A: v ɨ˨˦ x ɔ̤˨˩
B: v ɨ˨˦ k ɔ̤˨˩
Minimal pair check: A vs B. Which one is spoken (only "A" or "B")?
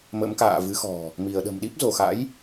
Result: A